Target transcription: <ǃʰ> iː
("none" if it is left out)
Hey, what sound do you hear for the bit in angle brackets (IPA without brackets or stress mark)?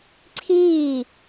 ǀʰ